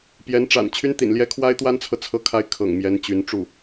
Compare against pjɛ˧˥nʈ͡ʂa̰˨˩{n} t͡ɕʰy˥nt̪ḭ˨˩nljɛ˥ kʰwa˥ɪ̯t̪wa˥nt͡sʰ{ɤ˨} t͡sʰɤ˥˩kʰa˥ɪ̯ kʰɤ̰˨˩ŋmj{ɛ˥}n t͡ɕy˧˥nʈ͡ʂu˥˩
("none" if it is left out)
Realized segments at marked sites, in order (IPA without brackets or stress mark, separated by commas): n, ɤ˨, ɛ˧˥